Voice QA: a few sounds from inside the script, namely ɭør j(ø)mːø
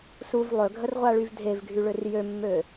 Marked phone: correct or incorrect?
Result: correct